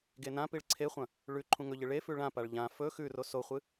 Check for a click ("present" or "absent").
present